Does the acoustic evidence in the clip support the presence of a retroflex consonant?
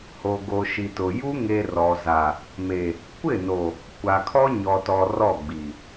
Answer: no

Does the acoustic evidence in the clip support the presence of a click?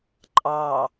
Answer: yes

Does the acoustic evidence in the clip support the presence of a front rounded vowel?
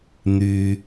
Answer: yes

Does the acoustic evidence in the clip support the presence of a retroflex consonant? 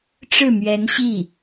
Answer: yes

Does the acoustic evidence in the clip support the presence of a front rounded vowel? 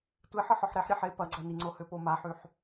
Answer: yes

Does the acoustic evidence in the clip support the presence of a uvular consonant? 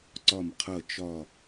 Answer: yes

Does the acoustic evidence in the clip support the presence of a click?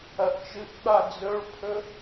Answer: no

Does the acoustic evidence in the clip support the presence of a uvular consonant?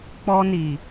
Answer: no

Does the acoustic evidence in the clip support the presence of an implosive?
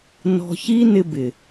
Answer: no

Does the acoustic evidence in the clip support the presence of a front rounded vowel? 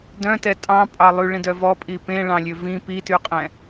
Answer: yes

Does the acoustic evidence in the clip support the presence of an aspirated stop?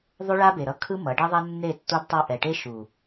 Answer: yes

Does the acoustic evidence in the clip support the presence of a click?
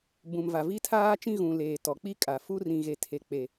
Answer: no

